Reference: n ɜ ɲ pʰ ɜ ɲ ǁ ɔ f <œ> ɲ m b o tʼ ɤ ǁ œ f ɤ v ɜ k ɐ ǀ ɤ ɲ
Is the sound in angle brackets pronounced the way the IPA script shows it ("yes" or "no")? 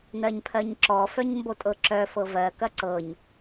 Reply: yes